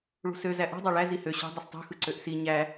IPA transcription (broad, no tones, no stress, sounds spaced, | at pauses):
ɭ ṳ s ø z æ ʔ ṳ dˤ ɑ ɭ æ z i h ø ɕ o̤ dˤ ɯ s tˤ ṳ x ɯ ǀ ø ʔ s i ɲ æ